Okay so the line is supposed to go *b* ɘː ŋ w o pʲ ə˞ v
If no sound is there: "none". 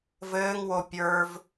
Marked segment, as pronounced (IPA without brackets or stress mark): v